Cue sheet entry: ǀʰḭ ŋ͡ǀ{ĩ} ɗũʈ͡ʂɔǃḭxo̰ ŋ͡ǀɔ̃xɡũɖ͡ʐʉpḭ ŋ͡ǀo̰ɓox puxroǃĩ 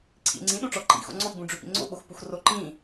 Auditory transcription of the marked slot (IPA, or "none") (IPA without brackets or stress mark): ĩ